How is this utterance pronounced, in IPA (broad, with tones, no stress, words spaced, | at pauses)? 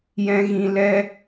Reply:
jɛ̃˧ɣĩ˧ lɛ˦